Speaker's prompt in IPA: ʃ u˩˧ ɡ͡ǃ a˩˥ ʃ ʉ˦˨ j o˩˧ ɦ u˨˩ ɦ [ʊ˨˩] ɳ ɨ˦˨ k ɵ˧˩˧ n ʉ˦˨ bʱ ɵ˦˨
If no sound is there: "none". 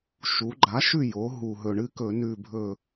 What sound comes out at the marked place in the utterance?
ɵ˨˩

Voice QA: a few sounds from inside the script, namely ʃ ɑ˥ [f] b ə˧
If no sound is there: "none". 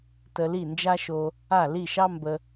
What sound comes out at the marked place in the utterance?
m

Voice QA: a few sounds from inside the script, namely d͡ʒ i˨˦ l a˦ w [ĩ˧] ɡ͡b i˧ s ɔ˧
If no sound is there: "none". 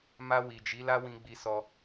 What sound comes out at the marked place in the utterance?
ĩ˧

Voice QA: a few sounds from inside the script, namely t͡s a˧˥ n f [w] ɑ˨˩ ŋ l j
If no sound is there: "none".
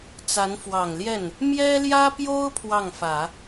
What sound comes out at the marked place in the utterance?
w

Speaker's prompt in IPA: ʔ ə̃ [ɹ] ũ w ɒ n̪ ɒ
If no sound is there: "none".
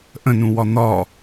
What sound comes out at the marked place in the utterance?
n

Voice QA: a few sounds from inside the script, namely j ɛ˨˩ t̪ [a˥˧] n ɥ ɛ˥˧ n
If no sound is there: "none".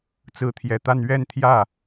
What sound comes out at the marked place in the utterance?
a˥˧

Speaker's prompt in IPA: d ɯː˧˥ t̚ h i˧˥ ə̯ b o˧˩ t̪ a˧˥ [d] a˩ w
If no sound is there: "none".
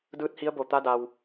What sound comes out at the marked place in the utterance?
d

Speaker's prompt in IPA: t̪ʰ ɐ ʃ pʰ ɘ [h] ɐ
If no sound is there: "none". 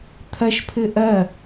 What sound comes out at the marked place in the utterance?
ʔ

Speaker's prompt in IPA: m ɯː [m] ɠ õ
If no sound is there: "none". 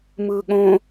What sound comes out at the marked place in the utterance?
none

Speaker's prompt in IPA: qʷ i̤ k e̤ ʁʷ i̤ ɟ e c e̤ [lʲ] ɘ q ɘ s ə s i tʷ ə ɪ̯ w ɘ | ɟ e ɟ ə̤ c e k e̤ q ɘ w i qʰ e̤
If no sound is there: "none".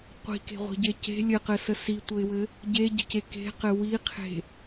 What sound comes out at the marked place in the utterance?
lʲ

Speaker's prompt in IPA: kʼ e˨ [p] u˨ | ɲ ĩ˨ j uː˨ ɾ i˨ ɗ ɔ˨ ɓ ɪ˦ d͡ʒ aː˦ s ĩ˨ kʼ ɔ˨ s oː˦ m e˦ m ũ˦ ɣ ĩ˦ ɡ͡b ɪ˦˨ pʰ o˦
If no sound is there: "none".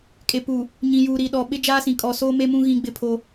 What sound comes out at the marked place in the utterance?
p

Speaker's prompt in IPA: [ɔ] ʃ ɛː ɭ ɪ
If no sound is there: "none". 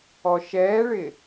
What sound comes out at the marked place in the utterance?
ɔ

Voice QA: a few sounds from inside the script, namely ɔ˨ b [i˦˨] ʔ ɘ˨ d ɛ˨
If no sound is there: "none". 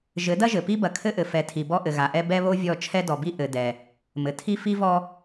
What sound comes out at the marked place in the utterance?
i˦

